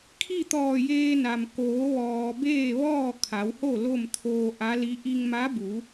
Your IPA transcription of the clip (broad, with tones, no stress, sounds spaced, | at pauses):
kʰ i˥˨ t̪ ɔː˧˩ j eː˧ n a˩ m k oː˩˧ ʋ ɔː˩ b eː˥˨ ʋ ɔː˥˨ kʰ a˩˧ w h o˥˨ l o˥˨ m t̪ʰ oː˧ ʔ a˧˥ l i˧˥ ʔ i˧ ŋ m a˧˥ b u˩˧